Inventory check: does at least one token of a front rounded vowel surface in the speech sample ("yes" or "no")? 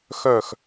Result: yes